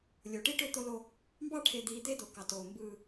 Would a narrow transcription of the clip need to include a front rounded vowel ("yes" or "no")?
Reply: yes